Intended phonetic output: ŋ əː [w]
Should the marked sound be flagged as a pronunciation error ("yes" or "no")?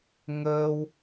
no